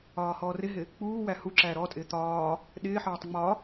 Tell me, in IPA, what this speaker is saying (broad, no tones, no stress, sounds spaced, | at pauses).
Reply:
ɒː h ɔː r ɪ ɦ ɪ | k͡p uː w æ h u ǁ æː ɾ ɔ tʼ ɪː t̪ ɒː | ɗ ɪː ħ ɒː tˤ ŋ͡m ɒ